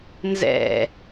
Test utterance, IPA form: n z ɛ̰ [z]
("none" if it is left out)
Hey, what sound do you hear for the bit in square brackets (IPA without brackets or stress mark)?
none